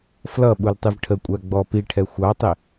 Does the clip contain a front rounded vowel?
no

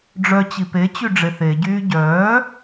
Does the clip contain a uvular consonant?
no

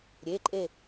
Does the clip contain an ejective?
yes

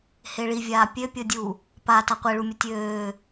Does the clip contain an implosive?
no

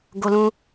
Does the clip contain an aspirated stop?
no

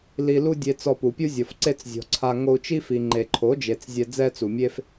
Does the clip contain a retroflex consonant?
no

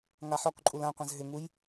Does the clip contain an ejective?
yes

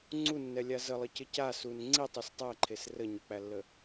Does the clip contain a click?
yes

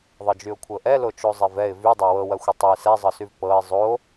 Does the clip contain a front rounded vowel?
yes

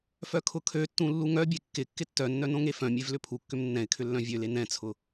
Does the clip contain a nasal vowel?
yes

